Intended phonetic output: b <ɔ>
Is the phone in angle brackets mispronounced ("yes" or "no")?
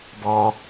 no